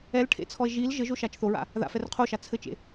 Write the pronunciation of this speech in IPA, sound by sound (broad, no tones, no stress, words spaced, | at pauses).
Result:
ɛlʈʰḛt͡sʰɔe̯ ʒil ʒɘʒoʃat͡ʃ θoɹa̰ | ða̰fɛr qʰoʃa t͡sʰɘt͡ʃḛ